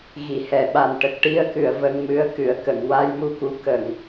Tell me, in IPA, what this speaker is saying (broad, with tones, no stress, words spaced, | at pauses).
ɣi˨˩˨hɛ˨˩˨ɓa˨˩n ʈə˨˩k̚ʈi˧ə̯kɨ˨˩˨ə̯ və˧ŋmɨ˧˥ə̯kɨ˨˩˨ə̯ kə˨˩˨ŋwa˧jmu˧ku˧˥ kə˨˩˨ŋ